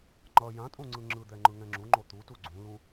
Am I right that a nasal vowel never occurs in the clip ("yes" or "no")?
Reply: no